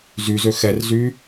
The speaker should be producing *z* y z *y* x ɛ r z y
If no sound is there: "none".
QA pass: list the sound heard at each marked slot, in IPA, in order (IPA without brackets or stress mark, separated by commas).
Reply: z, ø